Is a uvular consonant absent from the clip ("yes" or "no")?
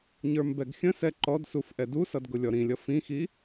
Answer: yes